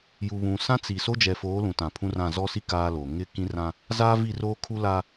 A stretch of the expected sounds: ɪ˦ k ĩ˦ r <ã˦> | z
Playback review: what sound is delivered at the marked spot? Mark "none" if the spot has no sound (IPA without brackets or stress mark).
ã˦